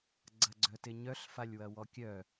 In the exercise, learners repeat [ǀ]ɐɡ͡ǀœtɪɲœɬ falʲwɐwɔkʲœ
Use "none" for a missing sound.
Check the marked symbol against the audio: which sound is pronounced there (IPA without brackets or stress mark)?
ɡ͡ǀ